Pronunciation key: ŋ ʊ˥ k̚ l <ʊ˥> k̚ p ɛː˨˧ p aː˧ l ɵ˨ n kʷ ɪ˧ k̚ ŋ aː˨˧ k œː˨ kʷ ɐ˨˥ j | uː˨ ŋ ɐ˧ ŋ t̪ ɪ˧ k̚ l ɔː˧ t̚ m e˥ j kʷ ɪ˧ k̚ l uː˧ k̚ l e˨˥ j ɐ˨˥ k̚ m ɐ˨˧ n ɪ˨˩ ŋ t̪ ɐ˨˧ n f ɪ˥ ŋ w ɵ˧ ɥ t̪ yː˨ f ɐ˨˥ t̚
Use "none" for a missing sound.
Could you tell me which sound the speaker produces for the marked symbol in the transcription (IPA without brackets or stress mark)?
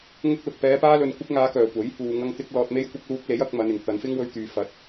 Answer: ʊ˨